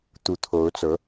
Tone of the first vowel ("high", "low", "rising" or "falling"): rising